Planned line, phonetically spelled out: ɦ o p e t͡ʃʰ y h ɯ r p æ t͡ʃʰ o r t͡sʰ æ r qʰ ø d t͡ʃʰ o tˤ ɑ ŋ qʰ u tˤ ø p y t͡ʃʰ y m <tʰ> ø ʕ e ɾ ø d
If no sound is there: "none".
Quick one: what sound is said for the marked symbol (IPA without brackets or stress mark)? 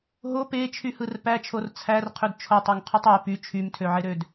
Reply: tʰ